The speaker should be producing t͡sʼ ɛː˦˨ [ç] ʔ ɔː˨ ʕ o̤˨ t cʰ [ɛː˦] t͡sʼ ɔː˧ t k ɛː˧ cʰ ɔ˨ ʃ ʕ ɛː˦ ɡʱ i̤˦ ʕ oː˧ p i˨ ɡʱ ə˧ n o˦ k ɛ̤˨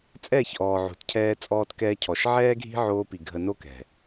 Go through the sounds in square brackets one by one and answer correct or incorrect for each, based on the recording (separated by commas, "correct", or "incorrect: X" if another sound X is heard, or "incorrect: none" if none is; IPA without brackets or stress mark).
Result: correct, incorrect: ɛː˧